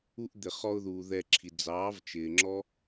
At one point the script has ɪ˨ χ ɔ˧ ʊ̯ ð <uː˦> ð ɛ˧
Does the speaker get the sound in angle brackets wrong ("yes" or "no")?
yes